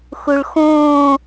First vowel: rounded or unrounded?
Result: rounded